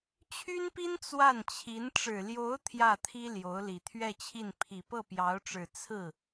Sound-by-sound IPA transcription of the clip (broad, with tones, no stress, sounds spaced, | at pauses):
t͡ɕʰ y˥ n p i˥ n t͡s w a˥˩ n t͡ɕʰ i˧˥ n ʈ͡ʂ ɻ̩˨˩ l j o˧˥ ʊ̯ t̪ʰ j ä˥˩ t̪ʰ i˥ l j o˧˥ ʊ̯ l i˨˩ t̪ʰ ɥ ɛ˥˧ t͡ɕʰ i˥˩ n pʰ i˨˩ p ɤ˥˩ p j ɑ˧˥ ʊ̯ ʈ͡ʂ ɻ̩˨˩ t͡sʰ ɹ̩˥˩